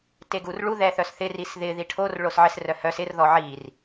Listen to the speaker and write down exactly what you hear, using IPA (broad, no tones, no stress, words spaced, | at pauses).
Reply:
teɡurɭu ðɛθœsθɪ risðɪ ðiʈʰor ɭosʕɪs rœhœs ɪr ðɔʕir